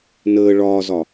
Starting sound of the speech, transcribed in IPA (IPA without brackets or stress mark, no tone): n